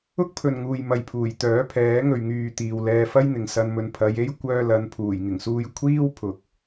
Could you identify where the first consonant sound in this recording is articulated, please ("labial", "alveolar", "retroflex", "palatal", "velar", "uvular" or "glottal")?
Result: velar